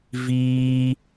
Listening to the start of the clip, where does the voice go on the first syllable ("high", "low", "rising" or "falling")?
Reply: high